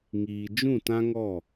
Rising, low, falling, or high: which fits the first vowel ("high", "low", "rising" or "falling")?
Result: low